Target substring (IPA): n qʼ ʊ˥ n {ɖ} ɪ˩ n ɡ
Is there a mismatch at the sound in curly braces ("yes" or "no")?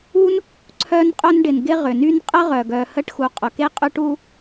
no